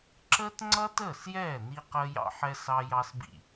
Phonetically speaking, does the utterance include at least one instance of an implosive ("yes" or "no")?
no